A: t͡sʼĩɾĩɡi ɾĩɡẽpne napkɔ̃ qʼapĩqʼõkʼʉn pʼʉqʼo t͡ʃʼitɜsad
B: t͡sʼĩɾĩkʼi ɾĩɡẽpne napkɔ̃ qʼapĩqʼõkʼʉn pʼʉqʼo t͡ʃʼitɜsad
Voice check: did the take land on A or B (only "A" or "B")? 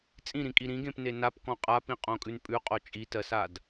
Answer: B